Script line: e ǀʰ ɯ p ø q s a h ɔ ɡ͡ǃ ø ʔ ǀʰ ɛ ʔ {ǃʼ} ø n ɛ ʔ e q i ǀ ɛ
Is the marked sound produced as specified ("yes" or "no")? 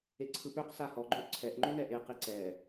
no